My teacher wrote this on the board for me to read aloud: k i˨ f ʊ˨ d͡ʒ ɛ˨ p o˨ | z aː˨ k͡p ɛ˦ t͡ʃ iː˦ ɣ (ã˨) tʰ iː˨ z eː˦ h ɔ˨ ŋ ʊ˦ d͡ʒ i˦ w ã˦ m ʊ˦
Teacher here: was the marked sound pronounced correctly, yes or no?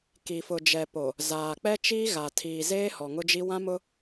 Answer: no